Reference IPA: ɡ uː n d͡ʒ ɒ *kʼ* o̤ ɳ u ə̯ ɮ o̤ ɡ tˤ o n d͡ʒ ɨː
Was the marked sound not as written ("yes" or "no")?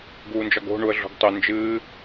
yes